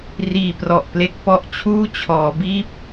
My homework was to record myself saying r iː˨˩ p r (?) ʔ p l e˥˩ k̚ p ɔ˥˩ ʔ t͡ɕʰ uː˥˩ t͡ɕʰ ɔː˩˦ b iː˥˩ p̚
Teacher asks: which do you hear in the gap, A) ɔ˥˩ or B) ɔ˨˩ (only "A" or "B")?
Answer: B